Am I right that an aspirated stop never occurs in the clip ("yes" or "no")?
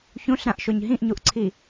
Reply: no